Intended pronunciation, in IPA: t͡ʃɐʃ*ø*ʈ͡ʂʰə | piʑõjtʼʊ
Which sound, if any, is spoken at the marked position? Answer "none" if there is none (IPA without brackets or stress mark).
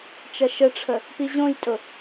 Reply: ə